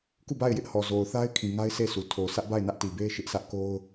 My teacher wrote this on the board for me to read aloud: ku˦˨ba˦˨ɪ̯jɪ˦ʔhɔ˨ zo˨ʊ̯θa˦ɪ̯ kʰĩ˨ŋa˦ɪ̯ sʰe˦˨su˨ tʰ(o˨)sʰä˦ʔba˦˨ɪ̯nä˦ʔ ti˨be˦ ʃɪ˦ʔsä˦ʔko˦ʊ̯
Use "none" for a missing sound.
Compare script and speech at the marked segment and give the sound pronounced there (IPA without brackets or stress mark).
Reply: o˨